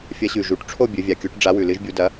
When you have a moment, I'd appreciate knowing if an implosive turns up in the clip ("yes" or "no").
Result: no